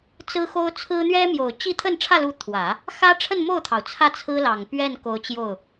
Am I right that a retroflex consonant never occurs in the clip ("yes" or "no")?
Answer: no